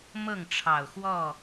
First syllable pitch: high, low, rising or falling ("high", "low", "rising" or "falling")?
falling